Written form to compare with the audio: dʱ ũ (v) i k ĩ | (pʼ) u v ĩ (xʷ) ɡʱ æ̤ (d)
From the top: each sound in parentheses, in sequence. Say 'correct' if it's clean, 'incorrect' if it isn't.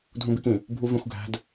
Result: incorrect: b, incorrect: bʱ, correct, correct

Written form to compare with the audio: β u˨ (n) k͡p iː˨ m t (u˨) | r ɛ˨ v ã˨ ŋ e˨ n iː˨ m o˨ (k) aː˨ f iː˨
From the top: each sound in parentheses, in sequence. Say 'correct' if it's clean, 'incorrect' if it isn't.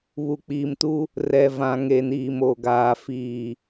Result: incorrect: none, incorrect: u˦, incorrect: ɡ

